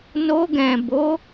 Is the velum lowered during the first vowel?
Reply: no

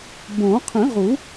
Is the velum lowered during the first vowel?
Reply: yes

